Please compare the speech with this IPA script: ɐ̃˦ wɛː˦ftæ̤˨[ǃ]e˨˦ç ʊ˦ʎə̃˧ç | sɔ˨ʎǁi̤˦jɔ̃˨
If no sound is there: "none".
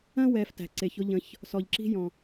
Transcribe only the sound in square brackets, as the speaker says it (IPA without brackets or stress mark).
ǀ